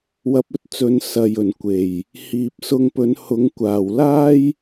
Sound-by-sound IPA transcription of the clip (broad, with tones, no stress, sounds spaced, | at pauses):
w ɐ˧ p̚ ɵ˥ t̚ t͡s ɵ˨˧ n s ɐ˨ j ɵ˨˩ n kʷ e˨˩ j | h iː˨ p̚ s ʊ˧ ŋ p ɵ˨˥ n h ʊ˨˥ ŋ kʷ aː˨˩ w l aː˥ j